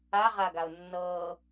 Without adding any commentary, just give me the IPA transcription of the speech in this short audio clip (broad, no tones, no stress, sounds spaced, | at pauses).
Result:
a ʁ a ɡ a ʊ̯ nː ɤ